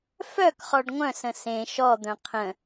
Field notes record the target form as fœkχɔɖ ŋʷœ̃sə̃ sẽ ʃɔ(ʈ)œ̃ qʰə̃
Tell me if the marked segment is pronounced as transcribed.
no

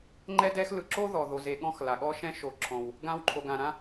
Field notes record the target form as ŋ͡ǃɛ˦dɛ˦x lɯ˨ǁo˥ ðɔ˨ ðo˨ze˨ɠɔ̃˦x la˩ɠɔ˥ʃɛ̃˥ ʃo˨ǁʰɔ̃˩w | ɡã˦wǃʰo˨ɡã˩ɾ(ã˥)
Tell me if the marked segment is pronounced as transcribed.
yes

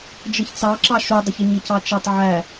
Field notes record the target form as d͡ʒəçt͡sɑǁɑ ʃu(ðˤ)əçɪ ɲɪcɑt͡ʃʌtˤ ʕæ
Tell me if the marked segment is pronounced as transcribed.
no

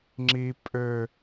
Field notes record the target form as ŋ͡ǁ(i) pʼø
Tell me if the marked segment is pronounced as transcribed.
yes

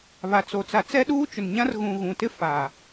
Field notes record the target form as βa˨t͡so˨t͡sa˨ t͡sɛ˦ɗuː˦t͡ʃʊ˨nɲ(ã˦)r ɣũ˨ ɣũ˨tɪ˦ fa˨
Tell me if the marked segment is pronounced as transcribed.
yes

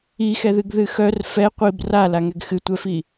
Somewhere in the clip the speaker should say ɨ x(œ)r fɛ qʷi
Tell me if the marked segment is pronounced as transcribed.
yes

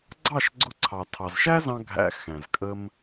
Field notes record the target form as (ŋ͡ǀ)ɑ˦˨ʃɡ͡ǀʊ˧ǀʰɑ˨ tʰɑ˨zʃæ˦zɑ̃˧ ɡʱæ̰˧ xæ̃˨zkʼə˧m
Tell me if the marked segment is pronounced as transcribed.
no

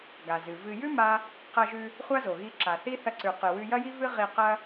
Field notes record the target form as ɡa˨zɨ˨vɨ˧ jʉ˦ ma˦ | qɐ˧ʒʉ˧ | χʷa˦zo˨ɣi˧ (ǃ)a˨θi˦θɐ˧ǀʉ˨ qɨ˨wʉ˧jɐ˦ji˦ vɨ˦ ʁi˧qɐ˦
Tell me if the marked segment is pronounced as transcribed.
no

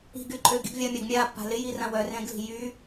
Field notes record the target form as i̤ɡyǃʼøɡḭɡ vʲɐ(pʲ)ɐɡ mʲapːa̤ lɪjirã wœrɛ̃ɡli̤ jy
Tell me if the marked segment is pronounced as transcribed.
no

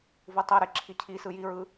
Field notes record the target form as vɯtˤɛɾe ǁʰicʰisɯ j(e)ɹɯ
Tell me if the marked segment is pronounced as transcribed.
no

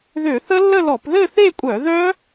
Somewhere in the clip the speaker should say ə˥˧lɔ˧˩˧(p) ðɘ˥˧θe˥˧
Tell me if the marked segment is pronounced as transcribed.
yes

